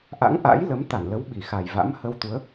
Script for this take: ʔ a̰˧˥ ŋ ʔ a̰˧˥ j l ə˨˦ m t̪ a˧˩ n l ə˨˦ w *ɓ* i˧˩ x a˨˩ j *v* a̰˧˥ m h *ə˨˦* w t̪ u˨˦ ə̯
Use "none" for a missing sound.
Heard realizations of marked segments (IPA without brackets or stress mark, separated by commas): ɓ, v, ə˧